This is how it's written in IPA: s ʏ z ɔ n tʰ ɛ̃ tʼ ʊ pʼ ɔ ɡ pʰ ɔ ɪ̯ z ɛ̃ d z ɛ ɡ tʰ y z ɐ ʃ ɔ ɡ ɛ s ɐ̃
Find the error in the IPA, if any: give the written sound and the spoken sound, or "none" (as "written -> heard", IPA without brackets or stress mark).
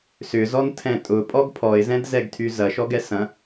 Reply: none